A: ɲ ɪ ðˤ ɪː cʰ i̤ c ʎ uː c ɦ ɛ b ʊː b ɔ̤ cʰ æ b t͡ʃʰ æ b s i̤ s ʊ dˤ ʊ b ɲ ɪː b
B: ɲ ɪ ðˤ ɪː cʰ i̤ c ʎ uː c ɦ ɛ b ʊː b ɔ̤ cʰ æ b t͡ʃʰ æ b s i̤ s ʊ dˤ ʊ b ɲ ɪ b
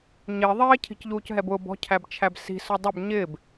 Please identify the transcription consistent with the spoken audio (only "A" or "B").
A